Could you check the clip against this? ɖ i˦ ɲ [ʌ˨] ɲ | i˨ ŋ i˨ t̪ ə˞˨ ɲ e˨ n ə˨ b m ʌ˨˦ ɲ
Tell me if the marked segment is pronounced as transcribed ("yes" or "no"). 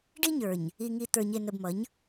no